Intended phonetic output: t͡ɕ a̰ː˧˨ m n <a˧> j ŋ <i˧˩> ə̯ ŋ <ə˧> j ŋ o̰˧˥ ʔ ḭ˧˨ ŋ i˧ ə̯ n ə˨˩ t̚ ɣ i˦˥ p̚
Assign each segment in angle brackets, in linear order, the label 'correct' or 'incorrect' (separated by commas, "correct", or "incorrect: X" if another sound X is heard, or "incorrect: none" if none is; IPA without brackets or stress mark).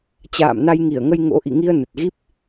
correct, correct, correct